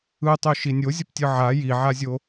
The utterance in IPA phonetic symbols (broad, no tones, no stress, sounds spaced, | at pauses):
ɯ tˤ o ʃ i nʲ o zʲ ʌ p tʲ ɯ ʕ a j i ʕ a zʲ o